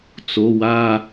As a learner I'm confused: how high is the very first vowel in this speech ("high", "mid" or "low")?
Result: mid